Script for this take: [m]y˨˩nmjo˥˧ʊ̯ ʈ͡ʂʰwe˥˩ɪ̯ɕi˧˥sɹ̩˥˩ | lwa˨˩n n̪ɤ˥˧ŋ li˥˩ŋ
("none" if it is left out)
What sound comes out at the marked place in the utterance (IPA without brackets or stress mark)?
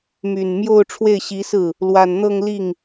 m